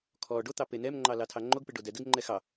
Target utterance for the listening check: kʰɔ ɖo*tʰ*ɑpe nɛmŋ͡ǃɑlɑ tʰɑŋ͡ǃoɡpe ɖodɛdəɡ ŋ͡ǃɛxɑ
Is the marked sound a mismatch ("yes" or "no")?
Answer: yes